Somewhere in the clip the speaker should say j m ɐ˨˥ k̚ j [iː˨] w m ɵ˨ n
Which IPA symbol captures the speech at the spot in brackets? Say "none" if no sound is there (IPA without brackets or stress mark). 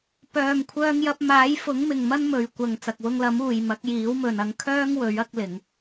iː˨˥